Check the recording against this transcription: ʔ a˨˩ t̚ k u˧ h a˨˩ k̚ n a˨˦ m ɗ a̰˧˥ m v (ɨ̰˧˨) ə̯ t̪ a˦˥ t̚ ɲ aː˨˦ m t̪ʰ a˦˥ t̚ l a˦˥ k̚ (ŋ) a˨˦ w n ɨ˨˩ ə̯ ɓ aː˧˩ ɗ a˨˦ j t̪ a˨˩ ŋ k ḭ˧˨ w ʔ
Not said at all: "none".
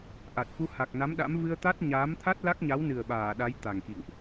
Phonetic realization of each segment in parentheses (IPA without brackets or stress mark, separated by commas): ɨ˧, ɲ